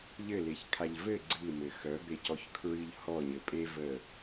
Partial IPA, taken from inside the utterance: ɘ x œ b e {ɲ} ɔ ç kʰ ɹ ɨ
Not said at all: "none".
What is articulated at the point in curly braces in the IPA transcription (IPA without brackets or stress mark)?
c